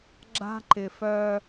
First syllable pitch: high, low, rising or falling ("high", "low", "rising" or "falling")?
high